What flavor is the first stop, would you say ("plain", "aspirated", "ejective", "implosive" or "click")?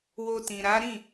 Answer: plain